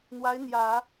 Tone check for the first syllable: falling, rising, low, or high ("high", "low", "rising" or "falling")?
rising